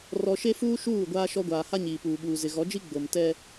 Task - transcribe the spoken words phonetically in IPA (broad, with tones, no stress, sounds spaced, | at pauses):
r ɔ˨ ʃ e˦ f uː˦ ʃ uː˦˨ ɡʷ aː˦ ʃ ɔ˦ ɡʷ aː˨ h a˦ ɲ iː˨ p uː˨ ɓ uː˨ z ɪ˨ ɣ ɔ˨˦ d͡ʒ i˦ ɡ͡b o˨ m t ɛ˦